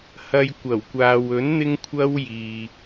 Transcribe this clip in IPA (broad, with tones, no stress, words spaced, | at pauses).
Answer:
hɐ˨j kʷɐ˨˩wkʷaː˨w ɵ˨˥nn̪ɪ˧ŋkʷʰɐ˧wjiː˨